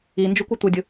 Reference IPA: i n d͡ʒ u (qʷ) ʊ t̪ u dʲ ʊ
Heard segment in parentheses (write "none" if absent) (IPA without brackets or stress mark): kʷ